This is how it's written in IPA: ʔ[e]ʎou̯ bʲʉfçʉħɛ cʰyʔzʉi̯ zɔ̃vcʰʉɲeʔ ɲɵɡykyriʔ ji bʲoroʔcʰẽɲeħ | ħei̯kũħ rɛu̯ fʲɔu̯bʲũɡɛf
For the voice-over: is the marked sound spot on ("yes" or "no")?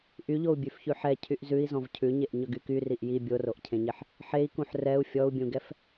no